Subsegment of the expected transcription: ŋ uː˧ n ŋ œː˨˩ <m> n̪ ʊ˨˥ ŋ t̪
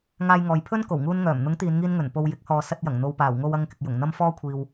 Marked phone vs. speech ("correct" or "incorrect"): correct